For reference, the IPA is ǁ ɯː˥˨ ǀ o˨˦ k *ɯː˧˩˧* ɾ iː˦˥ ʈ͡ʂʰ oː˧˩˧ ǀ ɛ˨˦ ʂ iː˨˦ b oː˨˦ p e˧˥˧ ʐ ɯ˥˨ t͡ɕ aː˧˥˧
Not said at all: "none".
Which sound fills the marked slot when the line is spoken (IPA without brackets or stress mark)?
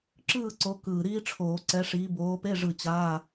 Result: ɯː˨˩